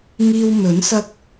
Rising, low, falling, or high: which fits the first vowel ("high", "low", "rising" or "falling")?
high